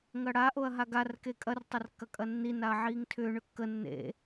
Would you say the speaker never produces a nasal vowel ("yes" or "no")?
yes